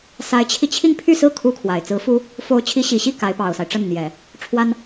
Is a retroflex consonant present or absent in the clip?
present